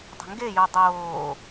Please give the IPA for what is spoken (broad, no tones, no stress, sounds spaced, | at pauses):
dˤ ə̤ ŋ ɡ e j o dˤ oː